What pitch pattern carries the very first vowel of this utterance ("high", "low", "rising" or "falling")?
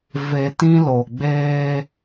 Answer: low